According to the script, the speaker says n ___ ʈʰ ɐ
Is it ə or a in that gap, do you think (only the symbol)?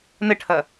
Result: ə